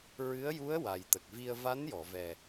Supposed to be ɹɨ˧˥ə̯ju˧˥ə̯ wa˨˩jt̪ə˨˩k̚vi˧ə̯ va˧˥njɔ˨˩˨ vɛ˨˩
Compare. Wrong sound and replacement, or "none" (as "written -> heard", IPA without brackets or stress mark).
none